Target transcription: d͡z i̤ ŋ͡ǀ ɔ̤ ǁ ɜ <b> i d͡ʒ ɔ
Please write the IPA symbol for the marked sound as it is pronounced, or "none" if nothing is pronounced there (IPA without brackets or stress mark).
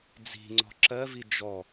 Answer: v